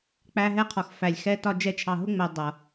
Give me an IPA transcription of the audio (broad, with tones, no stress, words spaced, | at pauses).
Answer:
k͡pæ˦ɦɛ˦qʰɔ˨x fæ˨lʲxɛ˦ tɒ˦ d͡ʒɛ˦ t͡ʃʰɑ˨ɦʊ˦ŋ͡mɜ˨ dˤʌ˨